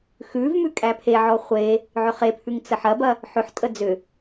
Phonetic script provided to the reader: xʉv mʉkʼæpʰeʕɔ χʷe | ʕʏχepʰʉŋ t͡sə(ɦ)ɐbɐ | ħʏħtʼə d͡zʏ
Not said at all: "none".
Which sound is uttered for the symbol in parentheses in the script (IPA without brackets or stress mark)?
ħ